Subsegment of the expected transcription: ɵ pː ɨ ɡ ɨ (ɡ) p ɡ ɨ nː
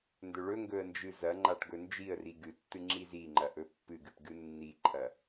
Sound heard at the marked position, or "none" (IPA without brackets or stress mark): none